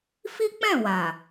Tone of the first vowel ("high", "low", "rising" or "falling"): high